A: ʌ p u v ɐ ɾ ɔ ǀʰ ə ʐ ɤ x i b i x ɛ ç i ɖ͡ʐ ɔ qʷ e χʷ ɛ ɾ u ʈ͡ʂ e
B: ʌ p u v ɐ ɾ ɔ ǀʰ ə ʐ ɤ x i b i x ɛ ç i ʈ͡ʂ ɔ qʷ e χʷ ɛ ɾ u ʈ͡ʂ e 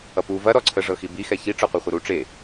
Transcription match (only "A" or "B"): B